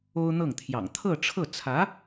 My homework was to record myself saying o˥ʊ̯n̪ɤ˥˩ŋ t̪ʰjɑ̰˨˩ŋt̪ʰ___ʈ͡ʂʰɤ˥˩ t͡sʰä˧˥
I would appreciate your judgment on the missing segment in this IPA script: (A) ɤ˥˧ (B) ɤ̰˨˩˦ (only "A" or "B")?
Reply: A